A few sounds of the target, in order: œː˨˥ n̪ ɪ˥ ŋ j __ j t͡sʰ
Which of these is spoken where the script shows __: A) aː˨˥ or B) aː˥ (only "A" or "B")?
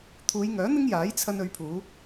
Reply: A